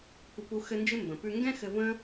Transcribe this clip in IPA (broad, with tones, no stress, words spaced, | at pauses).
kʷə˦pu˦ xɘ˧nd͡ʒɪ˦ mbə̃˨pʉ˦ ŋɡɛ̃˦xɘ˧və̃˦